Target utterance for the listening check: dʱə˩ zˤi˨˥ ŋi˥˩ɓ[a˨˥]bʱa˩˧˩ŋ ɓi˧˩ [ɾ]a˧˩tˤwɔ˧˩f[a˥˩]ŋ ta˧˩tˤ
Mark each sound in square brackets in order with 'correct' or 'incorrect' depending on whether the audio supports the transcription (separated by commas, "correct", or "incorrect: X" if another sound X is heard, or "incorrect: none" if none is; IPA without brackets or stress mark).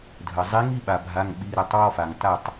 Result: incorrect: a˩, correct, incorrect: a˩